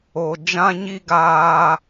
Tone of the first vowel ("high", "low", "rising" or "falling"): low